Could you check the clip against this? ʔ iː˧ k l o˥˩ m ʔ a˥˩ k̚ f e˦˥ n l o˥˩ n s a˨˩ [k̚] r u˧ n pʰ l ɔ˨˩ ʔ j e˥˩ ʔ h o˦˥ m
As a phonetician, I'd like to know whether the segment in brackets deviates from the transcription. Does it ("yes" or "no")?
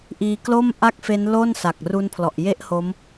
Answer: no